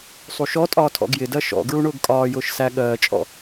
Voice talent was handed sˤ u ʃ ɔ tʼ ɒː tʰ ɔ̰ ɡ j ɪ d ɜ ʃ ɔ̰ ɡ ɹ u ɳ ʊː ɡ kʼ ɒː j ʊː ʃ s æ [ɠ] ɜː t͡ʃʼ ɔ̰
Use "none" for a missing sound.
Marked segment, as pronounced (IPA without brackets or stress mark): ɠ